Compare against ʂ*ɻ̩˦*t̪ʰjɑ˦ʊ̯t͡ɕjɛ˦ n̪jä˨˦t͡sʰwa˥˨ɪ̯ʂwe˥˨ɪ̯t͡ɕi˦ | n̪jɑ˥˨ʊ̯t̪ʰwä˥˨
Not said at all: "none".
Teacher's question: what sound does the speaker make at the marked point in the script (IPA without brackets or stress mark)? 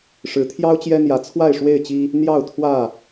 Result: ɻ̩˨˦